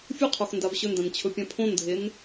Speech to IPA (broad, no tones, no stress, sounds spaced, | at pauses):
fʲ u qʰ o x n d a v ɕ ɵ n d ã n t͡ɕʰ ɵ pʲ ã pʰ õ n dʱ e n